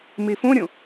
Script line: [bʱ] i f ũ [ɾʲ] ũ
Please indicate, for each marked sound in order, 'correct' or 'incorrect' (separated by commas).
incorrect, correct